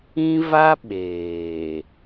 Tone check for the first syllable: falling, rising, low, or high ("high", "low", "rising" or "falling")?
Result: high